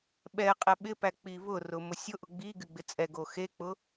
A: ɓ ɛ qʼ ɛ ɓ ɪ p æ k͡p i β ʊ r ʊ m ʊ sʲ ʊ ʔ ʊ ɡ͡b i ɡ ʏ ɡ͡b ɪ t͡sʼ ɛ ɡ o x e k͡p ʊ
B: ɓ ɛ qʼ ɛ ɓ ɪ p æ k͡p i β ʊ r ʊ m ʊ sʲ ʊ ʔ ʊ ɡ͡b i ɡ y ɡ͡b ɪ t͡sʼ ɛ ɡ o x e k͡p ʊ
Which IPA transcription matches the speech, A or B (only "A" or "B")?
B